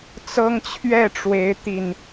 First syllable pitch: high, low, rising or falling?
high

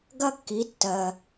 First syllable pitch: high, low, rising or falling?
high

